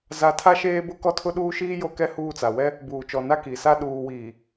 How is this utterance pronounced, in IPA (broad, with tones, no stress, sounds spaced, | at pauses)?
z a˦ tʰ a˦ ʃ eː˦ b ʊ˦ k ɔ˦ tʰ ʊ˦ ɗ uː˦ ʃ iː˦ j o˦ k ɛ˦ h uː˦˨ t͡s a˨ w ɛ˦ | b uː˨ t͡ʃ ɔ˨ n a˦ k i˨ s a˦ ɗ uː˨ w iː˨